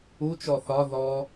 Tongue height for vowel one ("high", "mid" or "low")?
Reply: high